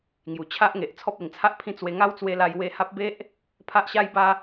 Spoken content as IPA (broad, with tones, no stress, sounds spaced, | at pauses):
ŋ j u˨˩ t͡ɕʰ a˦ ʔ ŋ e˨ ʔ t͡sʰ ɔ˦ p̚ e˨˩ ŋ t͡sʰ a˦ ʔ pʰ ĩ˦ t͡s w e˧ ŋ a˦ w t͡s w e˧ l a˧ j w e˦ h a˦ p̚ b e˦ ʔ | pʰ a˦ ʔ ɕ a˦ j b a˦